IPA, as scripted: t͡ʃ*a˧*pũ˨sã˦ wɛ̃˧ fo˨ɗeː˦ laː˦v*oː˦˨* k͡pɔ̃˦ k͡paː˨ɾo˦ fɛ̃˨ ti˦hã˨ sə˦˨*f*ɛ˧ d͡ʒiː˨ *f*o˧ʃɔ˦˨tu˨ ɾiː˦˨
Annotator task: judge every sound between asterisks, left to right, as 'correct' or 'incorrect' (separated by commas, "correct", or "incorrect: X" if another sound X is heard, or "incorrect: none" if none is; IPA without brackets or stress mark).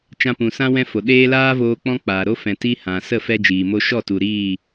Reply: incorrect: ã˧, incorrect: oː˧, correct, incorrect: m